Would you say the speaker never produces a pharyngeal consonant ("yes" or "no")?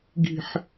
no